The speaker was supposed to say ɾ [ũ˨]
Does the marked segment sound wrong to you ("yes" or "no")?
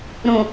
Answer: no